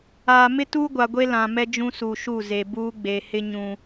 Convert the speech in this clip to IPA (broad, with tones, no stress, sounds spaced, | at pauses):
aː˨ m ɪ˦ t u˦ ɡʷ a˨ ɡʷ e˦ l ã˨ m ɛ˦ d͡ʒ ũ˦ s u˨ ʃ u˦˨ z e˨ b uː˦ ɡ͡b e˨ h ɪ˦ ɲ ũ˨